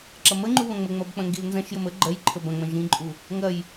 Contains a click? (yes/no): yes